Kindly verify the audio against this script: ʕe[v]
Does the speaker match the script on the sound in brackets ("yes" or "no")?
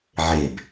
no